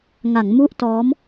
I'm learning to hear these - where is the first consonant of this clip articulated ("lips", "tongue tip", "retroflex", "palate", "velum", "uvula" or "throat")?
velum